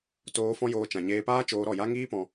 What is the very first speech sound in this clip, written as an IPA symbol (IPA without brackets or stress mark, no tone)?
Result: t